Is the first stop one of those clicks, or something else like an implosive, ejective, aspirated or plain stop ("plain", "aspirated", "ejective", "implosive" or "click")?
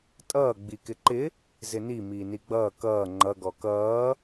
ejective